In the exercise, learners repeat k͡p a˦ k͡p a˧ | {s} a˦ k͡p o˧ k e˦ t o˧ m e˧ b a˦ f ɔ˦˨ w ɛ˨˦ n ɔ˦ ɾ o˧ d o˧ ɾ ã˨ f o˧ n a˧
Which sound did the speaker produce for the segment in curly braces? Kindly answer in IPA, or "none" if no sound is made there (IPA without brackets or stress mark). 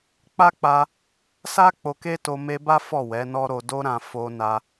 s